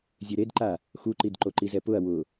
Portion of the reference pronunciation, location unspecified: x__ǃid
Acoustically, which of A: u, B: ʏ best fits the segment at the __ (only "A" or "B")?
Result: A